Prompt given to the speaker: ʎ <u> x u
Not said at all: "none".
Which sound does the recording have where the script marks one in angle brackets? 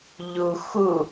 u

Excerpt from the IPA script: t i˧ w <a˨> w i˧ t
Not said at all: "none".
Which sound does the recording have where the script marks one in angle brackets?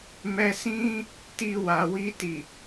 a˨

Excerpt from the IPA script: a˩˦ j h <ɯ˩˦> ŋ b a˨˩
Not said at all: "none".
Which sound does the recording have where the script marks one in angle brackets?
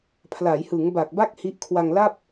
ɯ˩˦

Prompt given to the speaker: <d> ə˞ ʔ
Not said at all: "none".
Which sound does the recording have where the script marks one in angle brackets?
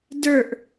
d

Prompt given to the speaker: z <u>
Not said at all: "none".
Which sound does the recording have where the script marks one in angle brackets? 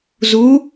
u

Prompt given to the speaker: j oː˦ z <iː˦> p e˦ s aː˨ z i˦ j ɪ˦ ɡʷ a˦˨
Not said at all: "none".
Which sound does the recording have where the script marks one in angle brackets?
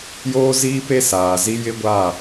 iː˦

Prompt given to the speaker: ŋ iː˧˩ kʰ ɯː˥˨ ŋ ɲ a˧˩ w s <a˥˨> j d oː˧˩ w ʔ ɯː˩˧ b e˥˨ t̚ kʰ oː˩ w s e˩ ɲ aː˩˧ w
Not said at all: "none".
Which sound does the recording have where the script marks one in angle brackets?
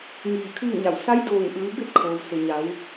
a˧˥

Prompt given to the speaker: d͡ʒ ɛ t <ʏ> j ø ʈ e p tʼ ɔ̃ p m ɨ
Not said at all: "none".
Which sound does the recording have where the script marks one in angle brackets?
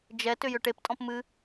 ʏ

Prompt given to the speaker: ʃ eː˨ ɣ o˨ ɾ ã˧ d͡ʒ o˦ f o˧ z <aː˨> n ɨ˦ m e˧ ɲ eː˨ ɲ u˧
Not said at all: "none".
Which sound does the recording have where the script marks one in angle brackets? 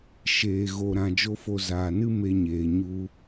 aː˨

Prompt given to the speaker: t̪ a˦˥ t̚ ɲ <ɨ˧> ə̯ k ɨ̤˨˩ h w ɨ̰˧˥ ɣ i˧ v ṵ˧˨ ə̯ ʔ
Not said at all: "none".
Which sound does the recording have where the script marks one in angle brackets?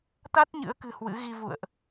ɨ̰˧˥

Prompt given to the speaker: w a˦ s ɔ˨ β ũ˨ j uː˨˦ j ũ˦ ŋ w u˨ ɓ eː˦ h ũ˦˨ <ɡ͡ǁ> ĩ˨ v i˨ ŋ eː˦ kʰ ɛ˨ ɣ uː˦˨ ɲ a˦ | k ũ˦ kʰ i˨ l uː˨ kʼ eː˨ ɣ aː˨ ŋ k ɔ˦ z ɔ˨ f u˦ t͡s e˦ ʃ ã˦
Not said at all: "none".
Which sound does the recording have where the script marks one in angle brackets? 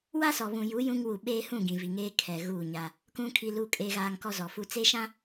ɡ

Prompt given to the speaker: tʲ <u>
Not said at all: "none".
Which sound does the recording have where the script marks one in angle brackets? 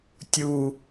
u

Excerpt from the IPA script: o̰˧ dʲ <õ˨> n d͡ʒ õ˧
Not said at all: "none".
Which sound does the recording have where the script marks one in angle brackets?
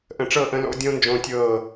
õ˧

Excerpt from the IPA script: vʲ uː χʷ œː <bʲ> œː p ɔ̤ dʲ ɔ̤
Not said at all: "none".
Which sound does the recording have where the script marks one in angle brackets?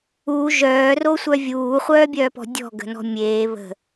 bʲ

